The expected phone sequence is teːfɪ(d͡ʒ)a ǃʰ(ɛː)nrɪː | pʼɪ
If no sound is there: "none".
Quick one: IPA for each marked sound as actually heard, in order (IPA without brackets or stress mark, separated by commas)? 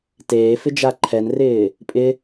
d͡ʒ, ɛ